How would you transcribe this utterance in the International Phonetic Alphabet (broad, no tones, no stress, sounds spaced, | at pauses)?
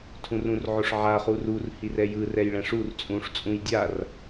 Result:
tʰ ũ r ũ r ʕ o ʂ ʕ a χ u r u r h i r ɛ j ɯ r ɛ j ɭ ɛ̃ ʂ u r t͡sʼ ũː ʂ t͡sʼ ũ j dʲ a r